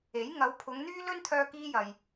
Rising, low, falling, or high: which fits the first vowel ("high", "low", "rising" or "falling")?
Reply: rising